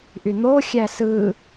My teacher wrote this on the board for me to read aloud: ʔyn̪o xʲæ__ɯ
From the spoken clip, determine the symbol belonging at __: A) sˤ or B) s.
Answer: B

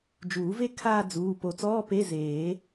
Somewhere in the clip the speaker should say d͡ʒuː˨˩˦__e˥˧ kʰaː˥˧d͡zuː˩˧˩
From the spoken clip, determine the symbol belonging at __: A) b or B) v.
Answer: B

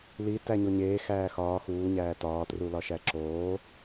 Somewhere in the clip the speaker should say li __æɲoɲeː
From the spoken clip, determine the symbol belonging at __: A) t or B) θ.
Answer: A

